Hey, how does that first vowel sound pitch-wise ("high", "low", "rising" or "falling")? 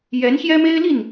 rising